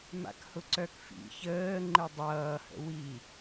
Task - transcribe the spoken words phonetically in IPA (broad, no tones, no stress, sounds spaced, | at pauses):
m a̰ k h ʊ ǀ œ k f ḭ ç əː ŋ͡ǃ ɯ dˤ ʌː h ə̰ w i